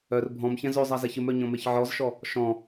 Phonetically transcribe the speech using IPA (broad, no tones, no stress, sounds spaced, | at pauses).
œ r bʱ ɔ̃ m ç ɛ̃ z ø zˤ a z ɛ ç ɪ m œ ɲ ɔ̃ m e ç ʕ ɔ z ʃ ɔ | ʃ ɔ̃